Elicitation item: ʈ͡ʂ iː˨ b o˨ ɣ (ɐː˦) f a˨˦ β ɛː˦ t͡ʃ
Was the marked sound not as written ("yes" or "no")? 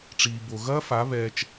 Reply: no